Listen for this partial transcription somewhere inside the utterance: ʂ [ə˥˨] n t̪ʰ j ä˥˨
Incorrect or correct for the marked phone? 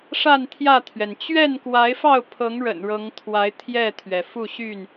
incorrect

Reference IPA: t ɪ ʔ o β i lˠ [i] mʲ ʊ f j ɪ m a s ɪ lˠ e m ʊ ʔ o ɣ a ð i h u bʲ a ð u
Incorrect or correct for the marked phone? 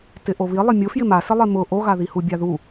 incorrect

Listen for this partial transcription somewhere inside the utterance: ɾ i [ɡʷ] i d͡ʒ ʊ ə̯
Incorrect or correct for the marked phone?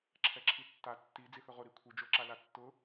incorrect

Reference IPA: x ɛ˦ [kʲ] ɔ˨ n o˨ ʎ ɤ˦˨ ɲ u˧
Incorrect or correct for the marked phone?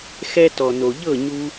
incorrect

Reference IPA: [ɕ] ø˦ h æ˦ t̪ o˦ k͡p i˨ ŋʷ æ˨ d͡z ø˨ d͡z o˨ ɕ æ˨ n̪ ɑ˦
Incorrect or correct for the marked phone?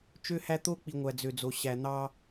incorrect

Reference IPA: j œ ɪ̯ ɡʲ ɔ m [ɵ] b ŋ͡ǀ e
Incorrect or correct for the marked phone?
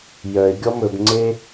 correct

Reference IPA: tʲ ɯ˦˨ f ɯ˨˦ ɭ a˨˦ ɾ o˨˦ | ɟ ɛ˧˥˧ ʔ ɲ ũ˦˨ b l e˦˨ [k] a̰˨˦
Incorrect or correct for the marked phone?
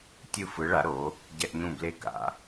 correct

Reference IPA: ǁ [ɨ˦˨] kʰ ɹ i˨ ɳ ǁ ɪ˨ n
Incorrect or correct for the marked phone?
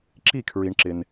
incorrect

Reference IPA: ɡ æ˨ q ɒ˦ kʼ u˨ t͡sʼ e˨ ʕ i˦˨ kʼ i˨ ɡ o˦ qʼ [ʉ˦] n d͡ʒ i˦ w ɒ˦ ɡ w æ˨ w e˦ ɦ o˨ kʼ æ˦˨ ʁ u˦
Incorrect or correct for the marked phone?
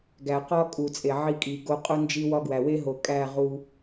incorrect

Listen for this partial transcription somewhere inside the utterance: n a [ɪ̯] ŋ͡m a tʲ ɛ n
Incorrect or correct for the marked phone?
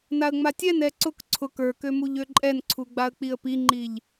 incorrect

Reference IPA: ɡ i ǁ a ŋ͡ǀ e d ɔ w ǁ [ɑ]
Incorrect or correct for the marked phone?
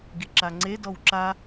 incorrect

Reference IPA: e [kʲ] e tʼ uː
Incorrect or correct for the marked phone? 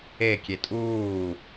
correct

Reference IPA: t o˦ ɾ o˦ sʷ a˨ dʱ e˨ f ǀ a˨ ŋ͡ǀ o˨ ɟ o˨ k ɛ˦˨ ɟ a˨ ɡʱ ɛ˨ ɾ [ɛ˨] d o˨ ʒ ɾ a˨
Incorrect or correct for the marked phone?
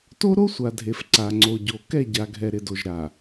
incorrect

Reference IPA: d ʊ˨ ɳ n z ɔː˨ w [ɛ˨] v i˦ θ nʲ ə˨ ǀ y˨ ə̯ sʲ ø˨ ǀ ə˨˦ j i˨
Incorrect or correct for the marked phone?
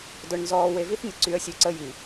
incorrect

